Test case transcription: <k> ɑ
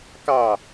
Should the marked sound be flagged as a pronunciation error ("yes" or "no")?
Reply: no